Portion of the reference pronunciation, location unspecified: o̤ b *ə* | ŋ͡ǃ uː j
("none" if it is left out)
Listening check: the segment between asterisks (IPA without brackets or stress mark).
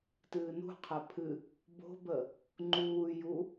ə